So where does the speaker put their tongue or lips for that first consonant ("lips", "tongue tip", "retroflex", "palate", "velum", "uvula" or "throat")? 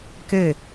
velum